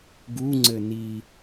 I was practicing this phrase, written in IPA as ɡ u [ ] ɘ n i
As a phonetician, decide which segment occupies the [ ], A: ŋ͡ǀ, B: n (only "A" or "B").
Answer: A